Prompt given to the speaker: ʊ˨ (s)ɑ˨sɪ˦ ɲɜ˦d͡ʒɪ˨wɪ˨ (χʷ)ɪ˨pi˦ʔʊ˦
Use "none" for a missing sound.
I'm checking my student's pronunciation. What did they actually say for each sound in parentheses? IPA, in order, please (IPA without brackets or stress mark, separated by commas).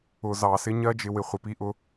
z, χʷ